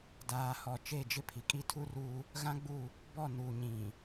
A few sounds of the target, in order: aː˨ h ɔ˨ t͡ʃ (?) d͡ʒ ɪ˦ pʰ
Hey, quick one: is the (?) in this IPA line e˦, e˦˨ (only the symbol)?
e˦˨